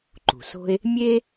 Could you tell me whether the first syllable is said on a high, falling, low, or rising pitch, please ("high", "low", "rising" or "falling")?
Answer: low